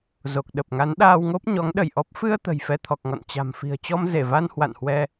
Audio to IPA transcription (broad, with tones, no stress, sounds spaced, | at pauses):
z o˨˩ k̚ ɗ ə˨˩ p̚ ŋ a˨˦ n ɗ aː˧ w ŋ o˦˥ p̚ ɲ ɔ˨˦ ŋ ɗ ə˧˩ j ʔ ɔ˦˥ p̚ f ɨ˧ ə̯ t̪ ə̤˨˩ j f ɛ˧ t̪ʰ ɔ˨˩ k̚ ŋ ɔ̰˧˨ n t͡ɕ a̤˨˩ m f i̤˨˩ ə̯ t͡ɕ ɔ˧ m z e˧˩ v a˧ n h w a̰˧˨ n h w ɛ˧